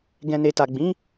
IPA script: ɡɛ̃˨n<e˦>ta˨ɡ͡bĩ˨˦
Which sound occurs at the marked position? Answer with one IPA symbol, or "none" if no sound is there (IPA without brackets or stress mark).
e˨